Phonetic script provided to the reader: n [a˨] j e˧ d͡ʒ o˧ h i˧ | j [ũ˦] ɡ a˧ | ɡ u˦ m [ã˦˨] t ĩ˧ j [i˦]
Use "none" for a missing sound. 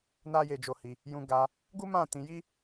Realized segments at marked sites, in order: a˦, ũ˧, ã˦˨, i˦

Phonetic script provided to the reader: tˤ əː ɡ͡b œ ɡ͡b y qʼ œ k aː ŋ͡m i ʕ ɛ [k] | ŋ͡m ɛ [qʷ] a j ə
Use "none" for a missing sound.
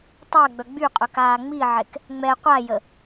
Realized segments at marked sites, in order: k, qʷ

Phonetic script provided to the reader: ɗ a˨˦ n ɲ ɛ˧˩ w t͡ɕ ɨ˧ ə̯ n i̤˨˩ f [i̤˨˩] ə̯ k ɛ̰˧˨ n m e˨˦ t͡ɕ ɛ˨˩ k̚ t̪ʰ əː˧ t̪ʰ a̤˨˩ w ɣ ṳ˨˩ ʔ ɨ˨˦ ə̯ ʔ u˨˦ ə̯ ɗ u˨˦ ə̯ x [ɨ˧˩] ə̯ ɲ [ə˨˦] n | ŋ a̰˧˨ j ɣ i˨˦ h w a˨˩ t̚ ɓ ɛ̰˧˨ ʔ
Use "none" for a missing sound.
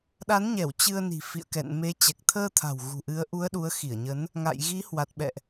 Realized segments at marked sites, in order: ḭ˧˨, i˧˩, ə˨˦

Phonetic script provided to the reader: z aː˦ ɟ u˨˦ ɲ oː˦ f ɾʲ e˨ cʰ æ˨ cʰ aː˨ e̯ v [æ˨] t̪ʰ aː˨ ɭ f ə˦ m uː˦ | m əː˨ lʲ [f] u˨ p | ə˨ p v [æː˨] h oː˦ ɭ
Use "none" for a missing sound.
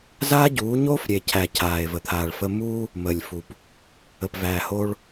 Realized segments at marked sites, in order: ə˨, f, æː˨

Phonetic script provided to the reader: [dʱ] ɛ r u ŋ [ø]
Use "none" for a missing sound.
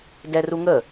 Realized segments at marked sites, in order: d, ə

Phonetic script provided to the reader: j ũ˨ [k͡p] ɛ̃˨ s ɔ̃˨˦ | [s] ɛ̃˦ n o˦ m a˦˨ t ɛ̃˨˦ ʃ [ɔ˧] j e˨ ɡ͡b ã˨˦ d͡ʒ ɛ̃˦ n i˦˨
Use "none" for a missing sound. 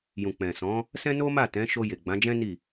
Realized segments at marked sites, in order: k͡p, s, o˧

